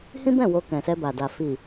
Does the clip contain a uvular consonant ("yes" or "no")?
no